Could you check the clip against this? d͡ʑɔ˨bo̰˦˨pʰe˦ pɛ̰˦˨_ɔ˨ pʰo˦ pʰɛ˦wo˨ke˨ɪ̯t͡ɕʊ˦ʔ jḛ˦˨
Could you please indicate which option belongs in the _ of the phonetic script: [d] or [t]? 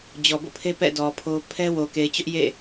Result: d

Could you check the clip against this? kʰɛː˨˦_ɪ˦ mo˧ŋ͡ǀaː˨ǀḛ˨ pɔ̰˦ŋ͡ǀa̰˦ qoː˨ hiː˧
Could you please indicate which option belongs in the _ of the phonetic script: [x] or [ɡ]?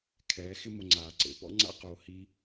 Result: x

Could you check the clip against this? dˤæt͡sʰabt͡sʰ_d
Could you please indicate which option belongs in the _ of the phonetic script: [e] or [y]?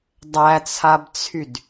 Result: y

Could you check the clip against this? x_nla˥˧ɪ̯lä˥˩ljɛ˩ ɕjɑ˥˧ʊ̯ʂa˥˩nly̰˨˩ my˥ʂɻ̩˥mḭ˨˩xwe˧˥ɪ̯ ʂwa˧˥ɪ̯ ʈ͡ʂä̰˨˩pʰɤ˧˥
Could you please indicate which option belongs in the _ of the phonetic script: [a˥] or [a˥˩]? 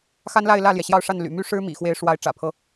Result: a˥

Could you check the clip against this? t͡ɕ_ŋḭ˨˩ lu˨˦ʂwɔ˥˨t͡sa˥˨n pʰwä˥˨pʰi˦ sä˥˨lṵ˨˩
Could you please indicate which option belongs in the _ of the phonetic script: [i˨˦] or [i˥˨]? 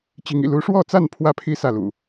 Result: i˨˦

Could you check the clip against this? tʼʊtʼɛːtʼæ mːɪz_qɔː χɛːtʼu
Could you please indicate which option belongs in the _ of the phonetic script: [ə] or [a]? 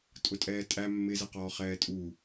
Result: ə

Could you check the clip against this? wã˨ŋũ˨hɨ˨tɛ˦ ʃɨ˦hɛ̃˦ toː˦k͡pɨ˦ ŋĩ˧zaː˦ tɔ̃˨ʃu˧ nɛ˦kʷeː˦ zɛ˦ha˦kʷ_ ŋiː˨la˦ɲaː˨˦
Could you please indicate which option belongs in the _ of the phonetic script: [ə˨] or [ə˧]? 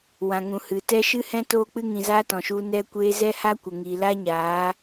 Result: ə˨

